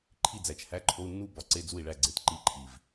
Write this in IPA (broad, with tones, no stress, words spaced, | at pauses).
ǃʰi˥˩d͡zæ˨˩t͡ʃhæ˧˥˧ǃʰo˧˥˧u̯ nːu˥˩bɒ˨˥ ǀe˧˥˧d͡zu˥˩i̯ɭæ˥˩ɡ͡ǀe˨˥t ǃi˧˥˧ǃʰi˨˩v